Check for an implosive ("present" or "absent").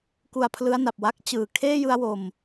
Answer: absent